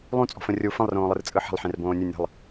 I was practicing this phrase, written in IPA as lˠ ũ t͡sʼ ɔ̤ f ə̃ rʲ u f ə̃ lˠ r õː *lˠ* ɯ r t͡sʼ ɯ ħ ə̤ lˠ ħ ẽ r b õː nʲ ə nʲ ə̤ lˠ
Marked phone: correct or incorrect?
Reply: correct